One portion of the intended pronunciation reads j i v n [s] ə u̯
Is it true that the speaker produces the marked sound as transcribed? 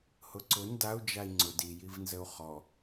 no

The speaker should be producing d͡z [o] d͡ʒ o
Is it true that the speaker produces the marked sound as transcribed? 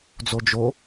yes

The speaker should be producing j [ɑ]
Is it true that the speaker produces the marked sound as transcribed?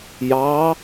yes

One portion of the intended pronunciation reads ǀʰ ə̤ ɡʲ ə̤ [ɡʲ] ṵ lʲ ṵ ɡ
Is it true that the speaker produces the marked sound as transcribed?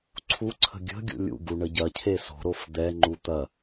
yes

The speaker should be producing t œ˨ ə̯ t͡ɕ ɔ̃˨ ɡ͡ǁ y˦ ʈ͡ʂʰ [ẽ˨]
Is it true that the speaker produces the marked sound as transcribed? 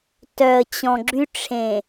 yes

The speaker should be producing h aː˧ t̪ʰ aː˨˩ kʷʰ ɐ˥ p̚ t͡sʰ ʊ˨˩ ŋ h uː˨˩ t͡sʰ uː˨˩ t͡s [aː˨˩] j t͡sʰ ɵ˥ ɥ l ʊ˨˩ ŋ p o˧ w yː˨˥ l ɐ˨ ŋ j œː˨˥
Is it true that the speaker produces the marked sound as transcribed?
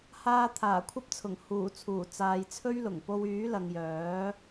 no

